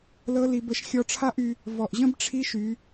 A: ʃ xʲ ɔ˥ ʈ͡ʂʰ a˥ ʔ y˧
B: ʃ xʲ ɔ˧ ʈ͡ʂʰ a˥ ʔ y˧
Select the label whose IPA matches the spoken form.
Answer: B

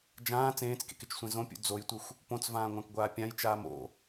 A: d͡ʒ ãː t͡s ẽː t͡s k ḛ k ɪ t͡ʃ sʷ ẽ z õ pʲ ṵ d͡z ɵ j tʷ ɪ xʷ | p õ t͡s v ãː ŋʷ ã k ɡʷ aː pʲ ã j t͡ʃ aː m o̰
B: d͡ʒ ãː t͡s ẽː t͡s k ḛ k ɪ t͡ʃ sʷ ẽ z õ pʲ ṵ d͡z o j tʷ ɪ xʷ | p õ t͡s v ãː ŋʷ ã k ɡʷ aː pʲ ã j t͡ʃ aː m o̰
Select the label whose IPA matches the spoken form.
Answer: B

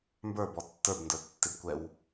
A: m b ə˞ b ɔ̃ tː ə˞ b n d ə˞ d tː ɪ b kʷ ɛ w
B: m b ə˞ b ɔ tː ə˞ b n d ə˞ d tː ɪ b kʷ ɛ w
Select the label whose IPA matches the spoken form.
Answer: B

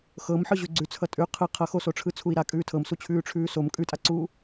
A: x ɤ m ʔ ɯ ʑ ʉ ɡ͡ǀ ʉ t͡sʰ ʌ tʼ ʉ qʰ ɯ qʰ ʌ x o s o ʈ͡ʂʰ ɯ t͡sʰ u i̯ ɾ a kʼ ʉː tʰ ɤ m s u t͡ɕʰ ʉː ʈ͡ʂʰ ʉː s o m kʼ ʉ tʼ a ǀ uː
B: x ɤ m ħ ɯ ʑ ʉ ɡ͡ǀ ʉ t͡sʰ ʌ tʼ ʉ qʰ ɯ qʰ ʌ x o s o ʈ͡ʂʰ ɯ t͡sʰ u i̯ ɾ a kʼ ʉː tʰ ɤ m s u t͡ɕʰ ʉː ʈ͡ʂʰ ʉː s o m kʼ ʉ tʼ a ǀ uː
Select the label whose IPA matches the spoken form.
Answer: B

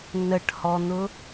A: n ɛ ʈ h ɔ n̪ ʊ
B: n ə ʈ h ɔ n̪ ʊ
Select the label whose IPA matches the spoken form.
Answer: B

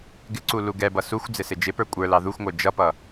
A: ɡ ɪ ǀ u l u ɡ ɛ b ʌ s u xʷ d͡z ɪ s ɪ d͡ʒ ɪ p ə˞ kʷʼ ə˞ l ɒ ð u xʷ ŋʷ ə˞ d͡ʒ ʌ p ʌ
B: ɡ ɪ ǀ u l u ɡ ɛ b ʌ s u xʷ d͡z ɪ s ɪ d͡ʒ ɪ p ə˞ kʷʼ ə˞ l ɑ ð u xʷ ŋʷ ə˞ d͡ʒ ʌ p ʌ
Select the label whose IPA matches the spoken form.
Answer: B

